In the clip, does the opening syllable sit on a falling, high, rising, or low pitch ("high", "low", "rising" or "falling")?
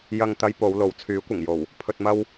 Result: low